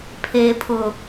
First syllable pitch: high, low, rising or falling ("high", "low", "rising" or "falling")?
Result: low